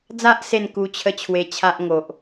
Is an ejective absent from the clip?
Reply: yes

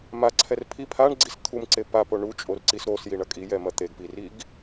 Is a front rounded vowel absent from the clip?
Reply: yes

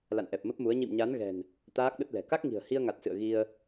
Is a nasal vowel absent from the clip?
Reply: yes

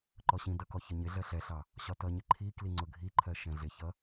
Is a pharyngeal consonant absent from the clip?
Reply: yes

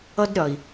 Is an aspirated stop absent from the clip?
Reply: yes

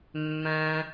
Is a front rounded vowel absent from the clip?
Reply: no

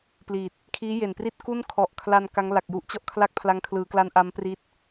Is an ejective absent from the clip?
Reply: yes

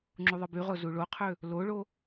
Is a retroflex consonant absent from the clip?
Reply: no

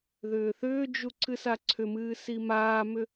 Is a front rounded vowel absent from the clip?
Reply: no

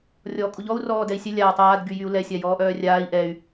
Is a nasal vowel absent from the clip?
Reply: yes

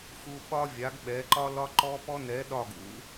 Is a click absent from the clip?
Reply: no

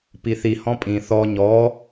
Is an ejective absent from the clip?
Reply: no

